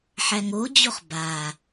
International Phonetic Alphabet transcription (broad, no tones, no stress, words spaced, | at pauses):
ħæŋod͡ʑoχ ba